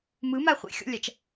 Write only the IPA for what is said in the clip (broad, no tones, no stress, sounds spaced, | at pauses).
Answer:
m ɯ m a χʷ ḭ xʲ ɔ̰ lʲ a t͡ʃ